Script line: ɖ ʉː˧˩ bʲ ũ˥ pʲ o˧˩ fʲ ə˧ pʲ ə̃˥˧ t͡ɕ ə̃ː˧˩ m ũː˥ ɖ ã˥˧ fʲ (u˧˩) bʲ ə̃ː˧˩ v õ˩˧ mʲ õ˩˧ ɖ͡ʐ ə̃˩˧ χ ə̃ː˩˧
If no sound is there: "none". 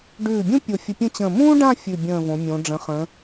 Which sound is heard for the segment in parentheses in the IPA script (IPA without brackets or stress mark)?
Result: ʉ˧˩